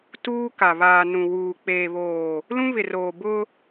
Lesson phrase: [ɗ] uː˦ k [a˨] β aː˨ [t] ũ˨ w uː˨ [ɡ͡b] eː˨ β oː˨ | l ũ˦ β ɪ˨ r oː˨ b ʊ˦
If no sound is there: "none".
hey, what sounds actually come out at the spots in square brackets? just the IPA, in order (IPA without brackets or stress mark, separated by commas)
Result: t, a˨, n, k͡p